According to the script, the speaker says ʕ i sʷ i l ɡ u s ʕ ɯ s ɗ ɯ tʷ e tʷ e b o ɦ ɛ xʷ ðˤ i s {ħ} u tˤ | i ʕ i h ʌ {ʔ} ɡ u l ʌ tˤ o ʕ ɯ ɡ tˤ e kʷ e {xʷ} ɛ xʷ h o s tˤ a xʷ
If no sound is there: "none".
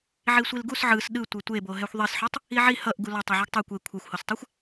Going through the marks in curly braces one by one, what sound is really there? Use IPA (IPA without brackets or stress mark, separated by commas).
ħ, ʔ, kʷʰ